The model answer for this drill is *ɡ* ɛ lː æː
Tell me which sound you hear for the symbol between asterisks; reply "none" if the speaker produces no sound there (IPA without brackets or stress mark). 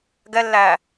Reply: ɡ